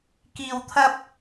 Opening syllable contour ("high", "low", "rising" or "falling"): low